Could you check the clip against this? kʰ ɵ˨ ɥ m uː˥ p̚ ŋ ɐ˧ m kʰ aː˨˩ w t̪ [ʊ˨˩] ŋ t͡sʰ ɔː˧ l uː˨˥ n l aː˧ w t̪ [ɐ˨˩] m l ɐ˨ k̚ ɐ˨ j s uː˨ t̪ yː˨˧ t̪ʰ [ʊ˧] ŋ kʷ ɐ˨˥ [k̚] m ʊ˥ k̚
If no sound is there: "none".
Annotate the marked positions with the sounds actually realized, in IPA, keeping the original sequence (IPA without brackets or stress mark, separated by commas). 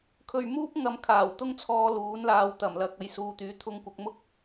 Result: ʊ˥, ɐ˨˩, ʊ˧, k̚